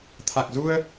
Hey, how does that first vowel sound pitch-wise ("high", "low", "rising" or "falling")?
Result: low